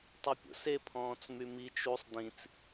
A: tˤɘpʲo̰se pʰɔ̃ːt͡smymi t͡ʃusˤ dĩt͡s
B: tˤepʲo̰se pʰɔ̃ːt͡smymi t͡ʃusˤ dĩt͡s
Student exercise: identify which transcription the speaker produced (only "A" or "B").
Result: B